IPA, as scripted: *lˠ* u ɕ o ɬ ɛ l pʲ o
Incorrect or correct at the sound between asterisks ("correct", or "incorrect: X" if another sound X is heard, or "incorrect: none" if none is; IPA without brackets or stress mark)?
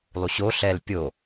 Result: correct